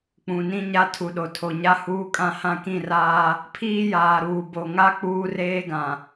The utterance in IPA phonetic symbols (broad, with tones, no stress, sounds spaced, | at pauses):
k͡p ũ˨ n ĩ˦ ɲ a˦ tʰ u˨ ɗ o˨ tʰ o˨ ɲ a˦ h uː˦ kʼ ã˦ h ã˦ k ĩ˦˨ r aː˦ | pʰ iː˦ j aː˨ ɾ uː˨ b o˨ ŋ a˦ k͡p uː˦ r eː˦ ɡ ã˨